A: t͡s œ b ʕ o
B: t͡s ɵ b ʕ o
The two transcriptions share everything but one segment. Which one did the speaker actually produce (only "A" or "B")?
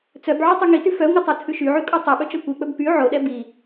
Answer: A